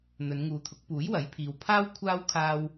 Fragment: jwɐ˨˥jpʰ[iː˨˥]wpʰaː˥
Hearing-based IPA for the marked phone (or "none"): iː˨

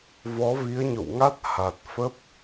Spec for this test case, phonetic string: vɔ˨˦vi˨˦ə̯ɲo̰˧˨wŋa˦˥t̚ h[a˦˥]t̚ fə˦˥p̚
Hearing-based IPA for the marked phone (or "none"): a˨˩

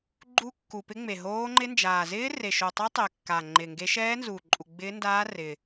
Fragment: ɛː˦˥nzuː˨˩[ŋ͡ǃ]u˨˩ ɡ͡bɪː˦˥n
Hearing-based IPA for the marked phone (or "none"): ǃʼ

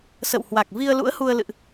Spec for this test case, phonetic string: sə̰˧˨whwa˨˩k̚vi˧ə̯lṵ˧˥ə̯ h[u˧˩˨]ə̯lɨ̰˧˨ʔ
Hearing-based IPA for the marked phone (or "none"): u˧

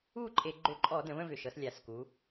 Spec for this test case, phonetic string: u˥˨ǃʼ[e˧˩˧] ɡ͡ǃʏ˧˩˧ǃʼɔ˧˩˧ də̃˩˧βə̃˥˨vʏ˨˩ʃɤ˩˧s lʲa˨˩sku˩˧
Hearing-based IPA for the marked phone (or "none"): e˧˩˧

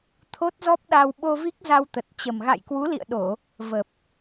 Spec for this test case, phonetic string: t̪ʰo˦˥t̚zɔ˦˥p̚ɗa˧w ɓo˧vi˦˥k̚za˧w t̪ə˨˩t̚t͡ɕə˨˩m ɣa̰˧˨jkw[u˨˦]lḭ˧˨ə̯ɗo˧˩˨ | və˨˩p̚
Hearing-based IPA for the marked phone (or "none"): u˨˦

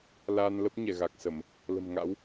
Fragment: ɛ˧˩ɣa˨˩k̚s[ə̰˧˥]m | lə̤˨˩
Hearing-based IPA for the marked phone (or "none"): ə˧˩˨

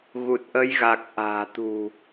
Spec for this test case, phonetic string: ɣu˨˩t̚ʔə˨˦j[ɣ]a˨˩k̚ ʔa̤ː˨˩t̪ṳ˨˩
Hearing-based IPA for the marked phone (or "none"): ɣ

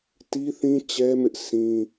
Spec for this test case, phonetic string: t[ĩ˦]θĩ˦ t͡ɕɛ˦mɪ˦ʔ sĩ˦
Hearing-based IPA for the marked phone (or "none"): i˦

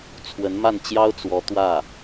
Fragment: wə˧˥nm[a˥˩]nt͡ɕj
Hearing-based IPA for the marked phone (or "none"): a˥˩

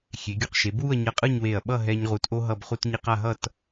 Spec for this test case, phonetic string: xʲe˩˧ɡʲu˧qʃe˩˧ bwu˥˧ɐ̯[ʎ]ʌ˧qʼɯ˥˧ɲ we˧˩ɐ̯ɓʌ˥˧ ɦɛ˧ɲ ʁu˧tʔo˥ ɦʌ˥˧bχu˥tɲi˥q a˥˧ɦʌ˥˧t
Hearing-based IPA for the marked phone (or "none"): ɲ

